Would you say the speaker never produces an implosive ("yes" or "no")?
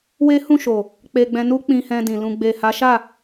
yes